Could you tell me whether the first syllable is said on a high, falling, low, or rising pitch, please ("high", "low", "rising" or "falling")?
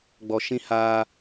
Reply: low